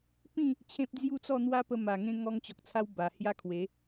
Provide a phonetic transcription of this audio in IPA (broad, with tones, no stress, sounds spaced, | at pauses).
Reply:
p ĩ˥˧ | t͡ɕʰ ẽ˦ p̚ d͡z j u˥˧ t͡s ɔ˥˧ n̪ w a˦ p ə˧ m a˨˩ ŋ ẽ˧ ŋ ɔ˧ ŋ t͡ɕ ɔ˨ k̚ t͡sʰ a˧ w b a˨˩ h j a˦ kʰ w e˨˦